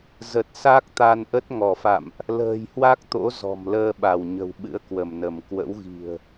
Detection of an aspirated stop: absent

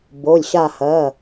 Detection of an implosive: absent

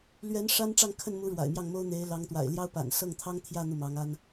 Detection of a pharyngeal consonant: absent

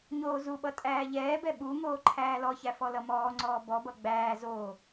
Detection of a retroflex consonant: absent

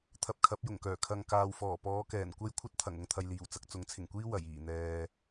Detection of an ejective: absent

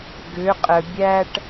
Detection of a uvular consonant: present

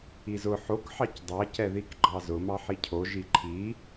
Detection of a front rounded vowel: absent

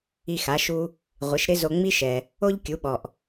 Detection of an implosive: present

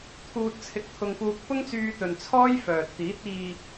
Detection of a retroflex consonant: absent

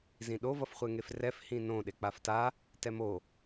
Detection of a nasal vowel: present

